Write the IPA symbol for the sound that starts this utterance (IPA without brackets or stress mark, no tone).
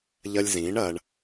ʎ